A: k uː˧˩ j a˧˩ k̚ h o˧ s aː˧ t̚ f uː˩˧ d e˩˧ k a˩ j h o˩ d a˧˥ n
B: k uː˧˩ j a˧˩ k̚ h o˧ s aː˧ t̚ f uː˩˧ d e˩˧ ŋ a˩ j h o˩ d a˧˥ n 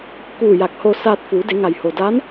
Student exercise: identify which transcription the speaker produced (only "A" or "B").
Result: B